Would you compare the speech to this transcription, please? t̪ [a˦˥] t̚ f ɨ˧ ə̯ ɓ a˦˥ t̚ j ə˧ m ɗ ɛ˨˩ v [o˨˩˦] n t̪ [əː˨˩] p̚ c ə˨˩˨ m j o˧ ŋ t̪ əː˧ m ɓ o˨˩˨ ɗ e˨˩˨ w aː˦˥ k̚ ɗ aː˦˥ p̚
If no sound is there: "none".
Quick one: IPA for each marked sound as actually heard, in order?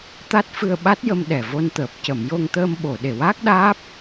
a˦˥, o˧, əː˨˩

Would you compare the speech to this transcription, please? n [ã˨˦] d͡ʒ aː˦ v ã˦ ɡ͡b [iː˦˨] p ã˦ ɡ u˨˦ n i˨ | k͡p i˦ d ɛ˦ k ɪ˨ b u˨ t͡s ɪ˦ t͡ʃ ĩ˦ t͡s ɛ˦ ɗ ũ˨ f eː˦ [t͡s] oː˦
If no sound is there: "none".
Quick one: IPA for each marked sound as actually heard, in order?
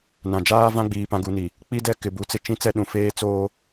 ã˨, iː˨, t͡s

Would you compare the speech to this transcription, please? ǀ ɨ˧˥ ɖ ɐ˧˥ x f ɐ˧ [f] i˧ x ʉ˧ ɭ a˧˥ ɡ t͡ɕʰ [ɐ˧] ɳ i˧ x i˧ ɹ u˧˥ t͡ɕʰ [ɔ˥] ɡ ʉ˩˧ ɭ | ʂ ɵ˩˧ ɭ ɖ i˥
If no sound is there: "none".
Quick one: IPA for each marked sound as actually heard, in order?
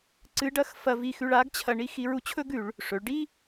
v, ɐ˧, ɵ˥

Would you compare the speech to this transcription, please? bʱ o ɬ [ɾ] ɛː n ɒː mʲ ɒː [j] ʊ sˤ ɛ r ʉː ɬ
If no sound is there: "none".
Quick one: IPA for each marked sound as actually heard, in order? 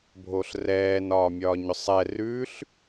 r, ɲ

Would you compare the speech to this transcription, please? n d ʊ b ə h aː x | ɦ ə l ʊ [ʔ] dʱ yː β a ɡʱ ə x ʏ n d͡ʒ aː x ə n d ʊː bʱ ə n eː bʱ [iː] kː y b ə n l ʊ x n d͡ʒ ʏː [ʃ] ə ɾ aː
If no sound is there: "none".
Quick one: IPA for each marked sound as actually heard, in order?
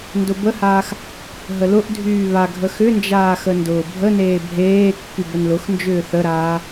ʔ, eː, θ

